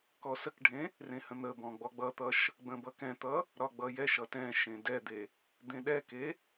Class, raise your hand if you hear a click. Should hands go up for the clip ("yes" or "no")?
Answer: no